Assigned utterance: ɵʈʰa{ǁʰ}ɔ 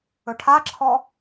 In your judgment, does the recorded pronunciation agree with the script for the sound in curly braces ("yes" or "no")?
yes